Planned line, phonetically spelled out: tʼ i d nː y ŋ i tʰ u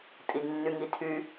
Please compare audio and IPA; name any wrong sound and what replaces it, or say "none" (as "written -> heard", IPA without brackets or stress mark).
u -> y